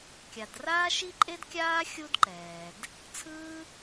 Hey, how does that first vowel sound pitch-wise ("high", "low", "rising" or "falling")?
low